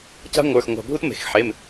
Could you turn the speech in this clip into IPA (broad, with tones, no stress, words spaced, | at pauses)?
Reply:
ca̤˥ŋʷə˞˩˧˩x ŋʷa̤˧˩bʱu˥tme̤˩˧xħe˩˧˩m